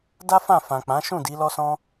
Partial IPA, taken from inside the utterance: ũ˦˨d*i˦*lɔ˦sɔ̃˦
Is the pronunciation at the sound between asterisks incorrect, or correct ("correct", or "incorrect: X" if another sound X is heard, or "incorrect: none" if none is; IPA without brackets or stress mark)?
incorrect: i˨˦